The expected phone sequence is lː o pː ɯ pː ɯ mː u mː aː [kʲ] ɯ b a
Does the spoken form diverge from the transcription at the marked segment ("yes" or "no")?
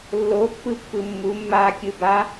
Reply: no